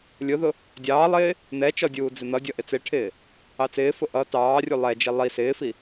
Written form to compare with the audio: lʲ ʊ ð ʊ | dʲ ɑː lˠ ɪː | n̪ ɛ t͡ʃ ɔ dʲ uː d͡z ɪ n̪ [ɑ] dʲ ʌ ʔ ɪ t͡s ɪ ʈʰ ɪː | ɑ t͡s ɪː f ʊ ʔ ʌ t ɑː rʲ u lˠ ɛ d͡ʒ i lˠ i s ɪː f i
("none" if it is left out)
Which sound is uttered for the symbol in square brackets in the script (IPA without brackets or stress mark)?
ʌ